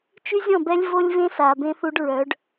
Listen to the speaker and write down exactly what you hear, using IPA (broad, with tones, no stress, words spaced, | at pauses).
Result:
t͡ʃy˦zʲɔ̃˦˨bɛ˦lʲ vo˦lʲvẽ˦sa˨ bẽ˦θu˦ɖɹœ˨˦ɖ